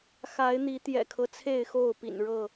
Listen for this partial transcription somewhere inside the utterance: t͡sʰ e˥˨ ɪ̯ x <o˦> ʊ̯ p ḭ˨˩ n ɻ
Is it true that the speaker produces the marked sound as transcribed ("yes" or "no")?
no